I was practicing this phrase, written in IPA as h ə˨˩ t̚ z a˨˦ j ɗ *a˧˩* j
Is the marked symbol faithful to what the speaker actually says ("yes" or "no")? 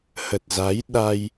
no